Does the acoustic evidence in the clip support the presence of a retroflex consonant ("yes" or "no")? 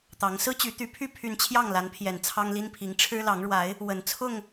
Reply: yes